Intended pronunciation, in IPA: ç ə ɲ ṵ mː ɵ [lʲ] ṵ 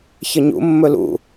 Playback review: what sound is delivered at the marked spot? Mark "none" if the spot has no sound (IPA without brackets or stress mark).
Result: l